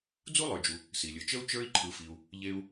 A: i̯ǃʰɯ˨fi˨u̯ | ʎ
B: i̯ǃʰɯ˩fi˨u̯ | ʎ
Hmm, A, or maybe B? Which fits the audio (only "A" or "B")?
A